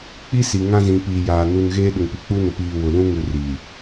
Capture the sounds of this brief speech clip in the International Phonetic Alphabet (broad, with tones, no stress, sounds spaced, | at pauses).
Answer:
k͡p i˦ s i˨ ŋ ã˦ z ĩ˨ p iː˨ j aː˨ n u˨ n ɣ eː˦ ɗ ʊ˨ ŋ p i˨ k͡p u˦ n ʊ˨ p iː˨ w ʊ˨ l ũ˦ ŋ u˨ r i˨